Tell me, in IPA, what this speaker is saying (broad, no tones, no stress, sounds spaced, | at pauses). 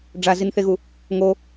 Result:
ɖ͡ʐ a z i n θ e ɣ u | ŋ o